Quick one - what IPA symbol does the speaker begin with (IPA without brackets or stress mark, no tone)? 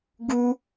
ɡ